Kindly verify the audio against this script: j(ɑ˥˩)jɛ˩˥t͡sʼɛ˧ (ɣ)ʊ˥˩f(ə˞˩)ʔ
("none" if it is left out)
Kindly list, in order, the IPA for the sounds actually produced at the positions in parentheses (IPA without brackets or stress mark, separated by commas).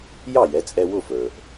ɑ˥˩, w, ə˞˩